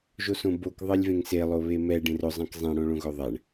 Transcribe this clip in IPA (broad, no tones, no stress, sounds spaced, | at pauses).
ʒ o s õ b o k ðˤ e lʲ v ẽ ŋ s e lˠ o β e m ɛ ɖ ẽ r ʊ zˤ ɛ̃ k zˤ ẽ ɽ õ ɭ õ ɣ ʊ ðˤ ɛ ɳ